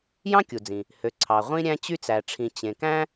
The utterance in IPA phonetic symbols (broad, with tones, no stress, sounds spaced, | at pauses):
j ɑ̃˥ kʲ u˩ d͡z ĩ˩ | h ø˩ ǀʰ ɑ˩ ʁʷ ĩ˥ ɾʲ æ̃˥ t͡ɕ y˥ t͡s æ˩ ʈ͡ʂʰ ĩ˩ t͡ɕ ẽ˩ k æ̃˥